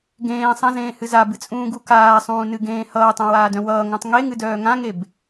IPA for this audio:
ɡ ẽː sˤ ã z ẽː h ɨ z a b ɨ t͡sʼ ũː ɡ u k aː sˤ ũː n ɨ ɡ ẽː h ʌː tˤ ã w aː d œ̃ w ʌː ŋ œ̃ tˤ ŋ e ŋ ɨ d œː ŋ ã ŋ e b

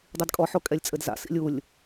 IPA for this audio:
dˤ i d kʼ ɔ ħ o kʼ ɛ lʲ t͡sʼ ɘ d z a̰ s ḭ lʲ u lʲ

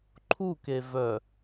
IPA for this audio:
ǃʰ u k e v œ

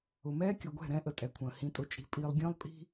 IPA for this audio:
ʊ˨ m ɛː˦ kʲ ʊ˨ ɡʷ ɛ̤˦˨ ɾ ɛ̃˦ ʔ ə˨ tʼ ɛ˨ kʷʰ ə̃ː˨ h ĩ˨ tʼ ʊ˨ t͡ʃʼ i̤˨ pʼ iː˨ lˠ ɡʲ ə̃ː˦ lˠ pʼ i̤˦

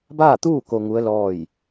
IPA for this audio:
b aː˥˨ t̪ uː˥˨ k o˧ ŋ u˧˥ ə̯ l ɔː˥˨ j

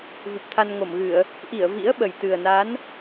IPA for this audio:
v u˨˩ p̚ t̪ʰ a˧ n ŋ o˧˩ m ɣ ɨ˧˩˨ ə̯ | ʔ i˧˩ ə̯ v ḭ˧˥ ə̯ ɓ ə˨˩ j t̪ ɨ˨˩ ə̯ n a˨˦ n

